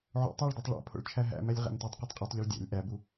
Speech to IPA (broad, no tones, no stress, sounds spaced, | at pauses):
ʕ o̰ tˤ æ ɭ d æ tˤ ɭ æ̰ pʰ o̰ ɭ t͡ʃʰ æ ɦ æ̰ m æ lʲ ʁ æ̰ m t u tˤ q u tˤ qʼ i tˤ ʎ e ɭ dʲ æ̰ lʲ ʔ æ b u